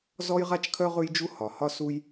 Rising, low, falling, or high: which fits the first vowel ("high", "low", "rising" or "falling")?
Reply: high